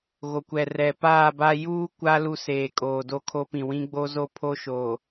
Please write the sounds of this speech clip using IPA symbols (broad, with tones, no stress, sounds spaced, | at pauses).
ɣ o˨ kʷ ɛ˨ r ɛ˨ p aː˦˨ b a˦ j uː˦ kʷ a˦ l u˦˨ s eː˨ kʼ oː˨ d o˦˨ kʰ o˦ p ĩ˨ w ĩ˦ ɡ͡b o˦ z o˦ pʰ o˦ ʃ oː˨